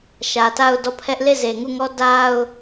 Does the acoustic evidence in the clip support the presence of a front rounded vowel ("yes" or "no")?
no